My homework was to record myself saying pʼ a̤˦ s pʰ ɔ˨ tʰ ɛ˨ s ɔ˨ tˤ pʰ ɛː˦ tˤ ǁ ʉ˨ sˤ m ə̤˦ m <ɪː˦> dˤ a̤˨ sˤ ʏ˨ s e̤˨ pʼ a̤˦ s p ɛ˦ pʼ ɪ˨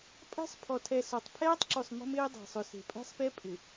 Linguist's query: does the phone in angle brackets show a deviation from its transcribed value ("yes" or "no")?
no